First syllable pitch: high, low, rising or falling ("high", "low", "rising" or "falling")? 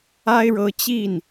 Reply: high